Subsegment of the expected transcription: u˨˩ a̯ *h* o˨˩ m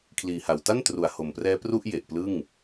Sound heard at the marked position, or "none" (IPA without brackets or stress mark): h